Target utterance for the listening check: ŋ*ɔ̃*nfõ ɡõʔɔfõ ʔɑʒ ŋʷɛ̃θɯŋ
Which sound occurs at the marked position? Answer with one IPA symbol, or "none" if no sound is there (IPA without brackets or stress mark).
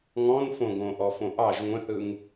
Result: ɔ̃